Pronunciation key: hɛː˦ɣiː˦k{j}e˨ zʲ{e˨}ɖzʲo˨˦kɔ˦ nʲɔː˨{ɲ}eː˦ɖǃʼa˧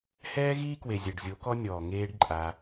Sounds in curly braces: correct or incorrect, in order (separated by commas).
incorrect, incorrect, incorrect